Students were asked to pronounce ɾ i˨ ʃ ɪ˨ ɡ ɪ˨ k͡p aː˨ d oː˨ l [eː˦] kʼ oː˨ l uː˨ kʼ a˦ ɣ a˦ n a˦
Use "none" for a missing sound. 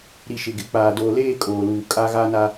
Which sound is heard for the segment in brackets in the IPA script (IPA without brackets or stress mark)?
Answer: eː˦˨